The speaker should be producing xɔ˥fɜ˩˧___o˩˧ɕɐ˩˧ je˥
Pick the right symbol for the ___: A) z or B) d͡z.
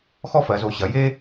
A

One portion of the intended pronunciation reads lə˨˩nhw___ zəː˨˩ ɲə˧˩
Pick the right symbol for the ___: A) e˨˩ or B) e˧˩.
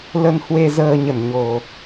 A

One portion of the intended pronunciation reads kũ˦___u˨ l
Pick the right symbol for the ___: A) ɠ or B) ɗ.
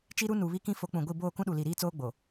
B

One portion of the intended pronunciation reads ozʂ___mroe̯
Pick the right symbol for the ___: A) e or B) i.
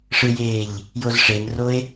A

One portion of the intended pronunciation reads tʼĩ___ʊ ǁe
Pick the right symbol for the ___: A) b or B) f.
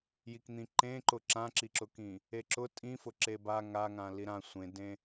B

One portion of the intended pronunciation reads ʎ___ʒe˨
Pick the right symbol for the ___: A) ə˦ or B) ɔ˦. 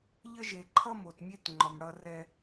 A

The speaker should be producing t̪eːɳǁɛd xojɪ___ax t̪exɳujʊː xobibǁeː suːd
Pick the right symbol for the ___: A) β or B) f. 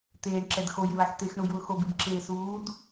A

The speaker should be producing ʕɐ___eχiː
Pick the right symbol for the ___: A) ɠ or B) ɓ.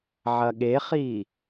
A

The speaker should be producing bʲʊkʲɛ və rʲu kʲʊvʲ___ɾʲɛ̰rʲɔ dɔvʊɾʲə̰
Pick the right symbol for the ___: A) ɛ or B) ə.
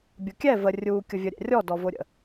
B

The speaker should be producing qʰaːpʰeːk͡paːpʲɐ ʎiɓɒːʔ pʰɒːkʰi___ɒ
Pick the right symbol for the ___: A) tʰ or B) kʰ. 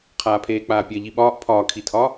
A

